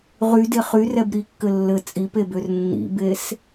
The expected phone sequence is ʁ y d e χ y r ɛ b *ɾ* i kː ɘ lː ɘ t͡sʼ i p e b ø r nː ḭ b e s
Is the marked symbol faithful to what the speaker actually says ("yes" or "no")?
yes